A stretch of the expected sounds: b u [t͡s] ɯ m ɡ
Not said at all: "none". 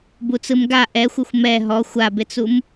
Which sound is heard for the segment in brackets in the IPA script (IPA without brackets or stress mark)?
t͡s